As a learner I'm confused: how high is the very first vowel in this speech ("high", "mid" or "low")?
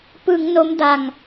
high